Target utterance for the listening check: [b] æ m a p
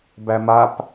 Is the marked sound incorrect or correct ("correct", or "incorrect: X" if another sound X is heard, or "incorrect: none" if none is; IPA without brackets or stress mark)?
correct